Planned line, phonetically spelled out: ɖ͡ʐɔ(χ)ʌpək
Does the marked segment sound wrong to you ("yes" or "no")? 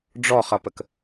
no